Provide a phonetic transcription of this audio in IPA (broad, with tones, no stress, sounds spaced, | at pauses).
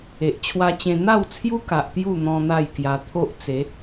e˨ ʔ t͡ɕʰ w a˧ t͡ɕ ẽ˧ n̪ a˥˧ w t͡sʰ j u˦ k a˨ ʔ t̪ j u˥˧ n̪ ɔ̃˦ n̪ a˥˧ j k j a˧ t̪ʰ o˦ ʔ t͡s e˨˦